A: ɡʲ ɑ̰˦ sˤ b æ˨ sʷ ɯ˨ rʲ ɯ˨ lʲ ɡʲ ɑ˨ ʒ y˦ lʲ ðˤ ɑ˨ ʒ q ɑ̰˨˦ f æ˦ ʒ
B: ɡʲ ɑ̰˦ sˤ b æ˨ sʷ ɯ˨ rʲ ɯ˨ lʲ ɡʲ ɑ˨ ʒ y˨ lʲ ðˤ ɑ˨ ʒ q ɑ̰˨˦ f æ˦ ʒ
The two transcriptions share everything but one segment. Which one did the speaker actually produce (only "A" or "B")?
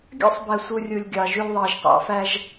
B